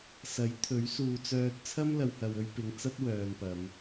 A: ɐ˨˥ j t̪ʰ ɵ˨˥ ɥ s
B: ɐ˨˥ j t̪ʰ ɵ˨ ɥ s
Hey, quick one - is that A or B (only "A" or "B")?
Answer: A